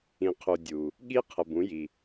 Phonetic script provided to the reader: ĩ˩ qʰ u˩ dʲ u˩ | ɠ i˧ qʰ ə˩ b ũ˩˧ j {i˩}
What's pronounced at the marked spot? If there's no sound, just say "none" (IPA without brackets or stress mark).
i˩